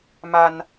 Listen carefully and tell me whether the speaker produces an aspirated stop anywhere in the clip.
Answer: no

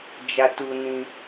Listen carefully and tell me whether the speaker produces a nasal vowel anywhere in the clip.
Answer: yes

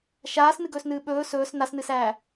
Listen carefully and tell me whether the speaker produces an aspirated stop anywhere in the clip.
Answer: no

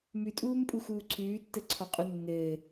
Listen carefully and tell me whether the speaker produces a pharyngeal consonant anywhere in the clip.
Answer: no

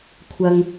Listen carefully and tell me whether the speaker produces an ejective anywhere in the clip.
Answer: no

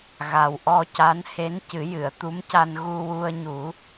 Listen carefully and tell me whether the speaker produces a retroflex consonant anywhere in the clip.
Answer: no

